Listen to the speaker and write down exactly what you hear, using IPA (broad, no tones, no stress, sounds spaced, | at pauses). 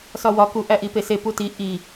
s ɒ w ɒ k u ʔ æ ʔ i p e s e p u t i ʔ i